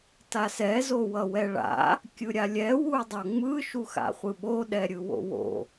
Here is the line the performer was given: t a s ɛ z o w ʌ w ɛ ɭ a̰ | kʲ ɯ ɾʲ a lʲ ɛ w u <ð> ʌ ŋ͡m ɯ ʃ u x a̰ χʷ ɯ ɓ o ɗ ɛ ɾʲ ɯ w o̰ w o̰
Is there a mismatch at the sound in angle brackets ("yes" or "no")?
yes